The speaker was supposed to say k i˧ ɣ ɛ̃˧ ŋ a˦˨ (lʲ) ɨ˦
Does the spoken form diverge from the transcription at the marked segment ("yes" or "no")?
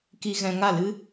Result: yes